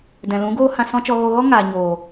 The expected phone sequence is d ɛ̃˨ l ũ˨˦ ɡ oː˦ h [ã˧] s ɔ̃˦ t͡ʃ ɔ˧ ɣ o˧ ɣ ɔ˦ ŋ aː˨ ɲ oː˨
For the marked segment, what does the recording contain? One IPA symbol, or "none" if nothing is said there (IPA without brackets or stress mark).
ã˧